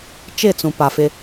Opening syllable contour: falling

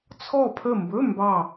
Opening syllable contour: falling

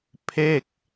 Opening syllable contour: falling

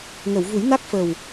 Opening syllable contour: low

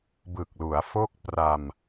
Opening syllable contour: low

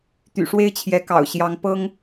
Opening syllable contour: low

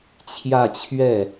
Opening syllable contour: falling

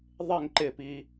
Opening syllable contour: falling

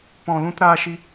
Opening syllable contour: low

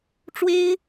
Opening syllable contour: high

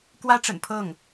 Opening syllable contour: high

